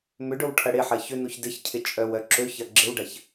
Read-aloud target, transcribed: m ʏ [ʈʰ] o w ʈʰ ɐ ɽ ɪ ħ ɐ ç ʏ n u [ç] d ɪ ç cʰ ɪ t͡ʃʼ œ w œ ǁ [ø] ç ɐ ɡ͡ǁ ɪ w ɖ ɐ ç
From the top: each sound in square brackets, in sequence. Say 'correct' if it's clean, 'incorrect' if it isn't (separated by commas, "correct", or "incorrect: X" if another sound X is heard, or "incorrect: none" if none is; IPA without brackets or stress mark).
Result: incorrect: ɖ, correct, correct